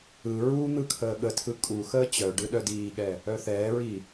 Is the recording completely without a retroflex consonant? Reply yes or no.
no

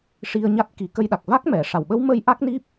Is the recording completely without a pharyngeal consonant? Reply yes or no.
yes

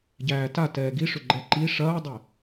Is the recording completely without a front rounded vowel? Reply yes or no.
no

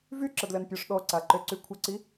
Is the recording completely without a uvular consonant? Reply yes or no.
yes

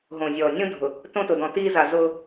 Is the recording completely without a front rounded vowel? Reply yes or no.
yes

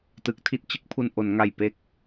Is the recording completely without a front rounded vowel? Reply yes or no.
yes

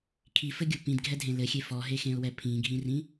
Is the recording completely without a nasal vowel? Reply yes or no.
no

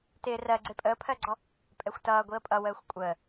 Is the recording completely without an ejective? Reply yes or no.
no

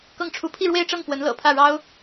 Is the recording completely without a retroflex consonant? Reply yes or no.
no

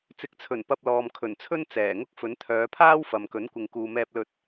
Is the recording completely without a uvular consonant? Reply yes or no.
yes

